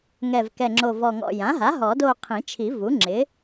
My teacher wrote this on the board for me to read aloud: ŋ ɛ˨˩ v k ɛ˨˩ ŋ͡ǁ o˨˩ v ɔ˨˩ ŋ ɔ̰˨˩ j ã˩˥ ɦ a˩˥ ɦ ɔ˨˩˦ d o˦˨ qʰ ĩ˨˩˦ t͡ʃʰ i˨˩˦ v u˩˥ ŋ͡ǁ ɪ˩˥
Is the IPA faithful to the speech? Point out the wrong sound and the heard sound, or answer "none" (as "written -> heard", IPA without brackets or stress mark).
none